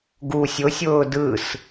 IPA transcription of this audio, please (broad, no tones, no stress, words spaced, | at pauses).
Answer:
ɡu sʲʊsʲʊː dɯs